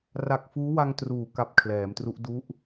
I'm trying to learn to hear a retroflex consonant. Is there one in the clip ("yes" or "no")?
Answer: no